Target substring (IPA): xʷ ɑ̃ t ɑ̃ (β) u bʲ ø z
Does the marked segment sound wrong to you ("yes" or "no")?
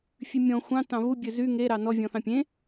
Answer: no